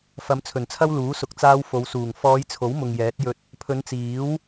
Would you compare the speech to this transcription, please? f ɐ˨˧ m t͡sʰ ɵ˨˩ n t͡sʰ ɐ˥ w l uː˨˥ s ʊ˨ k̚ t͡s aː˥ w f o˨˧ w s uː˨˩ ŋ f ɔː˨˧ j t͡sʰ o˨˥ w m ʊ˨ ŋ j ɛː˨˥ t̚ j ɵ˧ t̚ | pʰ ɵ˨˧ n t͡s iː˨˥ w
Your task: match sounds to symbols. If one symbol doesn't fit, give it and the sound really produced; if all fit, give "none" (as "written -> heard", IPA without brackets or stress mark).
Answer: none